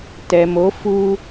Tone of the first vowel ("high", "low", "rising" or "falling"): low